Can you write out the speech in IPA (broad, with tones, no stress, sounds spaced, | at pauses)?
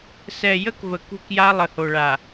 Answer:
s ɛ˨ j ə˦ k v ə˨ k ṳ˦˨ k j a˦ lˠ ə˨ h o˨ ɭ a˨